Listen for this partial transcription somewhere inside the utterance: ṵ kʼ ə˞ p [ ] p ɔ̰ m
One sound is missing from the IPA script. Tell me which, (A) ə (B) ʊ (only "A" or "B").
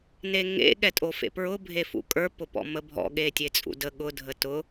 B